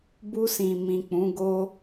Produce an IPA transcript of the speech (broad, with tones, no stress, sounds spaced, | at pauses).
b u˧ s ĩ˨ m ĩ˨ k͡p ũ˨˦ ɡ o˦